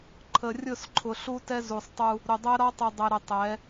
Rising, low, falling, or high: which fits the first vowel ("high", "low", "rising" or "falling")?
low